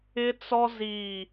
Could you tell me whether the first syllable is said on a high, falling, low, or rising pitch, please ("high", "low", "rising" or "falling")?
high